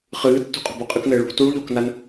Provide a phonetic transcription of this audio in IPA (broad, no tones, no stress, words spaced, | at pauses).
χɨːtːṳ qʼo̤boqʼɨknɘː ɭṳ tuɭ ʎoknan